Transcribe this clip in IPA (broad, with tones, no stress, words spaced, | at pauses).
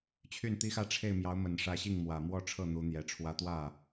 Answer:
t͡ɕʰy˥˩nt̪i˥ xä˥˧ʈ͡ʂʰe˥˩ɪ̯ mjɑ˧˥ʊ̯mə˨˩nʂä˧˥ɕi˥˩ŋ mwä˨˩mwɔ˥˧ʈ͡ʂʰɤ˥˩ n̪u˧˥n̪jɛ˧˥ʈ͡ʂʰwä˥ t̪wä˥˩